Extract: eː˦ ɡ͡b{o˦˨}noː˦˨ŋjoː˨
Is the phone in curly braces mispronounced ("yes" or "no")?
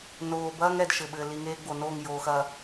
yes